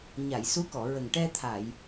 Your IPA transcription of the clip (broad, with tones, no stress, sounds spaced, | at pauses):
ɲ a˨˩˨ j s u˧˥ k ɔ˨˩˨ ɹ ə˨˩ ŋ ʈ ɛ˧ t̪ʰ a˨˩˨ j